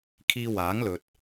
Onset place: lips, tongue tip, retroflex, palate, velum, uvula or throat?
velum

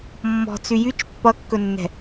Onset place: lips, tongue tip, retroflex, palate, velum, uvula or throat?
lips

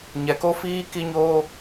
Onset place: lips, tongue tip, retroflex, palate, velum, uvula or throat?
palate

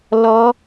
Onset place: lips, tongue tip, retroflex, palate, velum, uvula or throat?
tongue tip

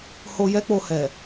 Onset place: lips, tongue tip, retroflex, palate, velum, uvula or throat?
throat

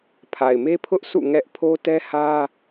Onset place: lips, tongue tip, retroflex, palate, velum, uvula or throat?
lips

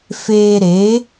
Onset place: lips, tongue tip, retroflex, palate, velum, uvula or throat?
lips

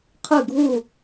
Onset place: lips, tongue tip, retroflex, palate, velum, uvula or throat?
uvula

